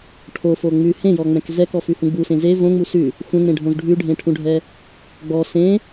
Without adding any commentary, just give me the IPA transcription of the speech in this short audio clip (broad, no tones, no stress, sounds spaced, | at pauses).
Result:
ʈʰ o f o ŋ͡m ʉ h ẽ j ɔ ŋ͡m ɛ̃ k z ɛ k ɔ f ʉ h ũ ɡ͡b u s ẽ z e v õ ŋ͡m u s ʉ | xʷ ɛ̃ ŋ͡m ẽ ɖʱ õ z ɖʱ ʉ ɖʱ ẽ ʈʰ ũ ɖʱ ɛ | ɡ͡b ɔ s ẽ